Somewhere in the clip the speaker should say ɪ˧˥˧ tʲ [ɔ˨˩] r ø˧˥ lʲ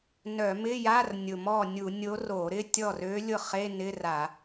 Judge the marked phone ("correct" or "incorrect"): incorrect